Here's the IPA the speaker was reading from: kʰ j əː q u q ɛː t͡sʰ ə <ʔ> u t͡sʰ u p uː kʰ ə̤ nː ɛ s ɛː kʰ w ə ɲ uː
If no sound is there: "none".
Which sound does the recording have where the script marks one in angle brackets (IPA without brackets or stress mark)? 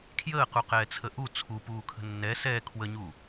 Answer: ʔ